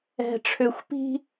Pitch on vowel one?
low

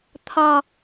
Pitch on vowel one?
low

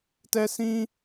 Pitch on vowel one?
high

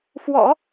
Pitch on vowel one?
low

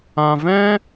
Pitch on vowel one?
low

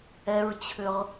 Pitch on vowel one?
low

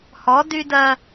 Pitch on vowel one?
rising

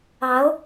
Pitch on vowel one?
rising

